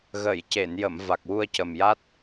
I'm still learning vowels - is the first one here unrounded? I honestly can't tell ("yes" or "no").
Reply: yes